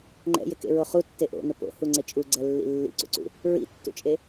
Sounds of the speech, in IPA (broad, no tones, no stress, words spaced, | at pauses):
ŋ͡ǃɛ̰jɪkḛɹo χutːe ʔo̰nʊ po̰huŋ͡ǀɪ t͡ʃʼuɡ͡ǀɛlːḭ lːḭǀṵǀṵ | ɹḭtːṵt͡ʃʼe